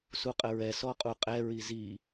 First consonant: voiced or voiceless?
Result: voiceless